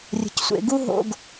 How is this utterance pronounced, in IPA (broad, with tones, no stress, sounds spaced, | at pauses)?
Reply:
rʲ ə̤˨ c sʷ ḛ˨ ɡ u˦ ɦ o̰˧ ɡ